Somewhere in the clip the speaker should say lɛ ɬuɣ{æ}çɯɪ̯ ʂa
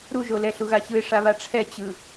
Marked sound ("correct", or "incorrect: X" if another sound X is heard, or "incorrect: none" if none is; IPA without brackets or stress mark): incorrect: a